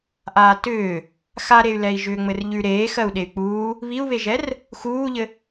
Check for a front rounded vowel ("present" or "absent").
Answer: present